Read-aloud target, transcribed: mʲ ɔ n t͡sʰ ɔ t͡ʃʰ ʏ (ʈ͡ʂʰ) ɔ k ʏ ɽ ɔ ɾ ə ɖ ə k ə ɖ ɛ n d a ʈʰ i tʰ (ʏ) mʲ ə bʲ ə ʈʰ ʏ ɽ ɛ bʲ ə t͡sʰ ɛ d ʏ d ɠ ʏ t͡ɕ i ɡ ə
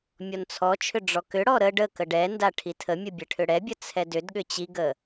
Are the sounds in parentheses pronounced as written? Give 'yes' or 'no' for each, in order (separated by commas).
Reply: no, no